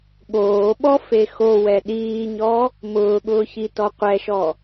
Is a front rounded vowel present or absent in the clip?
absent